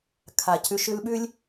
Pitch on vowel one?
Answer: low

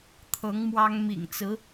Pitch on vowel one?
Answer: rising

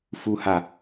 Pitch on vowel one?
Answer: high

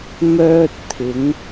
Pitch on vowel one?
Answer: high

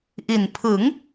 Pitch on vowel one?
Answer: low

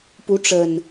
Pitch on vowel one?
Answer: rising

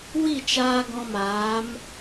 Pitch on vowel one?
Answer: falling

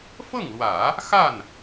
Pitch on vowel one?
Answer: falling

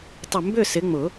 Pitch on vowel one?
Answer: low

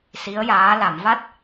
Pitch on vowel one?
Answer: rising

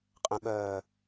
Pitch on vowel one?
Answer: low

